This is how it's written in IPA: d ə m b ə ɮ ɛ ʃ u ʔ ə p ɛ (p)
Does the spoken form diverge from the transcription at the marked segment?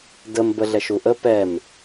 yes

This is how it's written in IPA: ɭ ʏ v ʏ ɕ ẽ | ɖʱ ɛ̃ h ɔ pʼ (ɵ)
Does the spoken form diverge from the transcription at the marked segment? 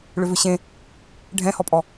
yes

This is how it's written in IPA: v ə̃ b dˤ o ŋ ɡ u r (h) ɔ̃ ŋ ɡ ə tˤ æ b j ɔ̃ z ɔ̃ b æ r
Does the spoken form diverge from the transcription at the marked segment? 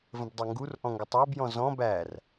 yes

